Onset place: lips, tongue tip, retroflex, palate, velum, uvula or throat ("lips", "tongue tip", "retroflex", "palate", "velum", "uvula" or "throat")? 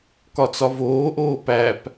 velum